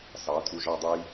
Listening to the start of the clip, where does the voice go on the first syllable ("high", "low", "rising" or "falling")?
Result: rising